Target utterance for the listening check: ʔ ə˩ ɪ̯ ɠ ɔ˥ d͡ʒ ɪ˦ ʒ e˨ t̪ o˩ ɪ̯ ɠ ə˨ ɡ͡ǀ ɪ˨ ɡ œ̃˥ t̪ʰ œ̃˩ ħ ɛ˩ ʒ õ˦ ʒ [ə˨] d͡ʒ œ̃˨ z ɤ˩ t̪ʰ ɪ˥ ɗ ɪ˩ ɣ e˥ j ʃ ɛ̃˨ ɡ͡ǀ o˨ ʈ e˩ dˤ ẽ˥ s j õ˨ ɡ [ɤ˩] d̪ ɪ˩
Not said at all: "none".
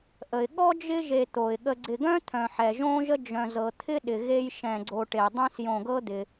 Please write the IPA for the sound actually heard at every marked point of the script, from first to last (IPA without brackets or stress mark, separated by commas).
ə˦, ɤ˦